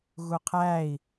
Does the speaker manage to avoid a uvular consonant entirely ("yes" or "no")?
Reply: no